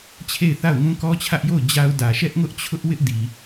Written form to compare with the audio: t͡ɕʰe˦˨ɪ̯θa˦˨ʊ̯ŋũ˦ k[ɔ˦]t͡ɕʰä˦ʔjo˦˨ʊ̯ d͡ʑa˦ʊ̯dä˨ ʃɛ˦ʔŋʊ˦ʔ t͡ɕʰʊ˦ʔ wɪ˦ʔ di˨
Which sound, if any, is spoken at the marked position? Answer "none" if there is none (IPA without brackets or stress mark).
ɔ˦